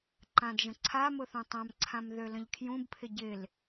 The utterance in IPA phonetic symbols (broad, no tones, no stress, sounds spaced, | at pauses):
ǃ ã d ʒ ə̃ ǀʰ a m ʊ θ õ tˤ ã m ǀʰ ã m ð ø l ə̃ ʎ kʰ j ũ b pʰ ɪ ɟ ɪ l